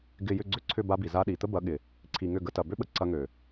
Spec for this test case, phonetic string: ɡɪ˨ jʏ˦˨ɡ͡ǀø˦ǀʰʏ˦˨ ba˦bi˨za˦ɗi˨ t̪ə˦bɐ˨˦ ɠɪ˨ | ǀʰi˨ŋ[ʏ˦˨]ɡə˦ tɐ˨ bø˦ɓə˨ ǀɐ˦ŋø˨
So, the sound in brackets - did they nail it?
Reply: yes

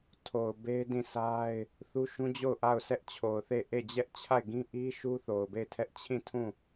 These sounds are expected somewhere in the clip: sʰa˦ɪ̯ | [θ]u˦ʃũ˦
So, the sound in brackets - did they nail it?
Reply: yes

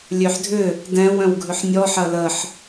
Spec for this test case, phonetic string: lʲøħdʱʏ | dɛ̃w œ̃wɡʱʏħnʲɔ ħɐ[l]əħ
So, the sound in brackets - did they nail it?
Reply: yes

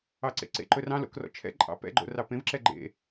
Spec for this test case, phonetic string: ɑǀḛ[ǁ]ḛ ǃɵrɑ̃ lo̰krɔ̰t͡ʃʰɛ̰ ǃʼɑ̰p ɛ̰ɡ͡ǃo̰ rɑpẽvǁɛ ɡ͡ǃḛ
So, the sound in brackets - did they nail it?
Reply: no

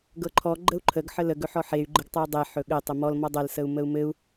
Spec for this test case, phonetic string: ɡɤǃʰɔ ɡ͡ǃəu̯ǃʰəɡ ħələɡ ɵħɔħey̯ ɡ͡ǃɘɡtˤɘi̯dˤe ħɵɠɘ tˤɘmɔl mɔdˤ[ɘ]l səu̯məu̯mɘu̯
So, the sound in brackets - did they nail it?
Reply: yes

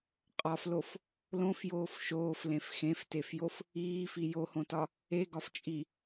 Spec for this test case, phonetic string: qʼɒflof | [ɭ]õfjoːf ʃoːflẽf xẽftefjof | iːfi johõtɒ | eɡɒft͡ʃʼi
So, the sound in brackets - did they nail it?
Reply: no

